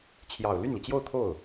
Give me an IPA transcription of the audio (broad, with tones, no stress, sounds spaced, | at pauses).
t͡ɕʰ j ɑ˨˩ ʊ̯ l y˥˩ n l i˩ t͡ɕ j o˥˧ ʊ̯ t̪ʰ o˥˩ ʊ̯